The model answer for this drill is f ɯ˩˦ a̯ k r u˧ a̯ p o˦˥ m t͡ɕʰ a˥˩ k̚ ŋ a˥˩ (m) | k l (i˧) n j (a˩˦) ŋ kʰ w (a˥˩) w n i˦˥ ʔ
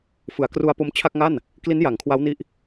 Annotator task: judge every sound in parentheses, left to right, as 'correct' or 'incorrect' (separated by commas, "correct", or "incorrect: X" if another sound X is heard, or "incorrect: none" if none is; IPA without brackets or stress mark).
incorrect: n, incorrect: i˦˥, correct, incorrect: a˦˥